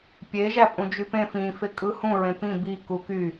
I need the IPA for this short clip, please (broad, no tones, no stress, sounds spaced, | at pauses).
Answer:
pʲ e ʒ æ pʼ ũ d͡ʒ y p ẽ f ĩ f e kʼ ɯ h ũ ɹ ẽ p ĩ b i k u k y